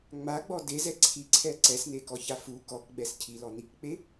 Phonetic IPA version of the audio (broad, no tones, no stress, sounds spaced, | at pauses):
ŋ͡m a ɡ͡b ɔ d e z ɛ ǀʰ i ǀʰ ɛ ǀ ɛ s n e k ɔ ç a f u k ɔ k ɡ͡b ɛ s cʰ i l ɔ n i k k͡p e